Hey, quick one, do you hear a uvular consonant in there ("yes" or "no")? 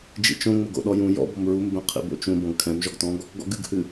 yes